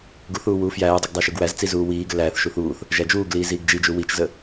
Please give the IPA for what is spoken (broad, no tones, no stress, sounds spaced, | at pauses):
ɡ u θ uː w uː f j æː dˤ u ɡ dˤ æ ʃ u ɡ w æ z t͡s i z uː w iː ɡ ə l æː θ ʃ u θ uː θ | ʒ æ d͡ʒ uː ɡ l iː z iː ɡ d͡ʒ i d͡ʒ u w i t͡ʃ z ə